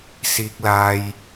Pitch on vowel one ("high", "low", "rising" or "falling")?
high